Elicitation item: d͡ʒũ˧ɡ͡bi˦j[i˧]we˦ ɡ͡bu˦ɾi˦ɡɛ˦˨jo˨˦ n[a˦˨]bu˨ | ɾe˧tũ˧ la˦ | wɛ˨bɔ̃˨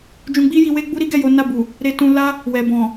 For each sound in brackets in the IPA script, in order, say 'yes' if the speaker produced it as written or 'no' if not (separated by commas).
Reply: yes, yes